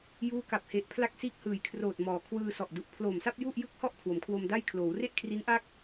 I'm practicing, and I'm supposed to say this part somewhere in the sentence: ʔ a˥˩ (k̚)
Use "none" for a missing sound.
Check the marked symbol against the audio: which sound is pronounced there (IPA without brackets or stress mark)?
k̚